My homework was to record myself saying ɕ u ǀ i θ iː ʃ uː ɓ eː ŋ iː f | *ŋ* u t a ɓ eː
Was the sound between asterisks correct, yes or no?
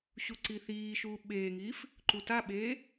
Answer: no